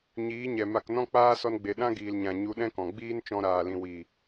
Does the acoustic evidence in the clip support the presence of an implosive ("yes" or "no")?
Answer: yes